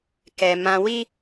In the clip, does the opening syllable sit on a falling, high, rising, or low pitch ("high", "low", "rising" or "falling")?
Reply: low